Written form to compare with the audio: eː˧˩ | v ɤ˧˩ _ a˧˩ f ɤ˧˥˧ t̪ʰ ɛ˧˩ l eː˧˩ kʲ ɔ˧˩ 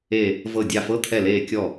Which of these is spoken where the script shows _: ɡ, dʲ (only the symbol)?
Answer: dʲ